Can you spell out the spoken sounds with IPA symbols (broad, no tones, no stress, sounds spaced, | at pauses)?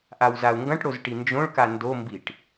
ʔ a w z a u̯ ŋ ɡ ɐ̃ ʈ ɽ o z ʈ i n d͡ʒ õ ɭ k a n d o m b i ʈ